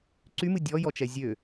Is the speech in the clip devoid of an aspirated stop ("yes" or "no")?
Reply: yes